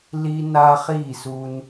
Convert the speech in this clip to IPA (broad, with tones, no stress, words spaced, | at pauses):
li˦ na˦χi˦˨su˧n